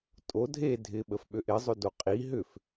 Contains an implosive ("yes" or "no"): yes